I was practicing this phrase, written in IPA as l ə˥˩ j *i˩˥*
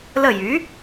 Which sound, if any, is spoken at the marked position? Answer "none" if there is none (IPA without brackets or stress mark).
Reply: y˩˥